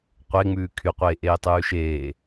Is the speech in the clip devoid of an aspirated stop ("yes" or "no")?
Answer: no